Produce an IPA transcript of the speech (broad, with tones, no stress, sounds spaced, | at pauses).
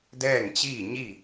d ɛː˥˨ ŋ t͡ɕ iː˥˨ ɲ i˥˨